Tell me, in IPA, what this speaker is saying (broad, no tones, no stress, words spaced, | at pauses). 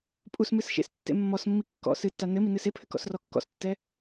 pʼusmɨs ʃḛstːḛ mːɔsmːi kːɔ̰ sɨtːa nɘ minɨsepʰɘ kɔ̰srɔkːɔ̰stːɛ